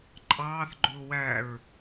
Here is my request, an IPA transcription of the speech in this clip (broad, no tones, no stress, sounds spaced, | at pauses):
ǃʼ ɑː θ ɡ͡ǃ ʊː w æ ɹ